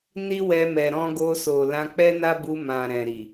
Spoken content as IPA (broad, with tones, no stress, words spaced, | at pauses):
ni˦wɛ˧mɛ˨ ɾɔ̃˧ɡo˧so˨ lã˧k͡pɛ˦na˦bu˧ mã˨ ɾɛ̃˨ɾi˨